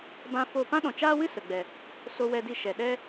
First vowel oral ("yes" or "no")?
no